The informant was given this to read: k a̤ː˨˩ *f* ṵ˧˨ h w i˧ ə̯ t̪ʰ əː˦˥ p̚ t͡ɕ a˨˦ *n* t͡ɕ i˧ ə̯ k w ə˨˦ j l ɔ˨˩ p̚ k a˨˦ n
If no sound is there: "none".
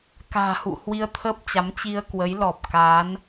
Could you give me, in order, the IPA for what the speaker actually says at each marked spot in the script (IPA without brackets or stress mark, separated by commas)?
h, m